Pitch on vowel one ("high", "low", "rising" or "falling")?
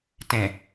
low